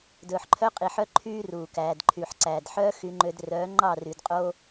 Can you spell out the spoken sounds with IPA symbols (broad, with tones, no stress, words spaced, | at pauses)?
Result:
dɵː˨ħǃʰœ˦qʼi˨ħœ˦ ǃʰyː˦ruː˨kæː˨dǃʰy˨ħ ǀæː˨dħœː˦ xy˦ŋ͡ǃø˦d rœː˨˦ ŋ͡ǃɑ˦˨ry˨dqʼo˦